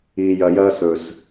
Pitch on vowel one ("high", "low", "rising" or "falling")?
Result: low